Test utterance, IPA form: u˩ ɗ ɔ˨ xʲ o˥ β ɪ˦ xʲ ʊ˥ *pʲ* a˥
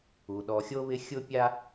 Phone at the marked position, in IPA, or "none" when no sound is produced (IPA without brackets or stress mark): pʲ